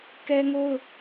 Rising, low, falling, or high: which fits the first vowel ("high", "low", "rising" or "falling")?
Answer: high